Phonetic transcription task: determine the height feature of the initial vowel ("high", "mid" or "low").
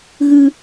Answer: high